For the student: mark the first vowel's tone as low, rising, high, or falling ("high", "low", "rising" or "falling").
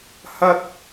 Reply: high